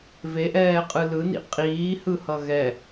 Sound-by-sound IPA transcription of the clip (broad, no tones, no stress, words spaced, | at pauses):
veʔɛːqʼɯ lɯnḭ qʼiːhɯhʌ ɣɛ